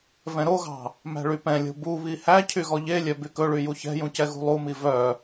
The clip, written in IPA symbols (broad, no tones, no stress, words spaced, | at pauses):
vɛ̃ɾoɣɑ̤ | mæ̤ɭypɛ̃lʲo̤ buβi hæcʰy ɣɔʎelʲœ bykɵɭy juçɛ̤jũ cɛɣṳlˠumi vœ